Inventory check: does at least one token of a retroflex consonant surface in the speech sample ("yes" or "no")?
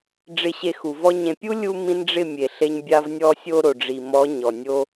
yes